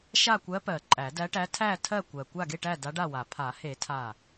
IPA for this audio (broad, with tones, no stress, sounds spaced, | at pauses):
ʃ a˥˨ kʷ ɜ˧˥ p ɜ˨˩˦ ǃʼ æ˨˩˦ d æ˧˥ ʈ æ˧˥ tʰ æ˥˨ tʰ ɜ˥˨ kʷ ɜ˨˩ kʷ a˥˨ ɡ e˥˨ ʈ æ˥˨ d a˧˥ ɖ a˥˨ w a˨˩˦ pʰ a˨˩˦ h e˨˩˦ tʰ a˥˨